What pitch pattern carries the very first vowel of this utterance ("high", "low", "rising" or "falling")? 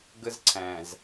high